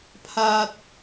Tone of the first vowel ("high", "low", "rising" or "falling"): high